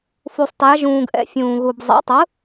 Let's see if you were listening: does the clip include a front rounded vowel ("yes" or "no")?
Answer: no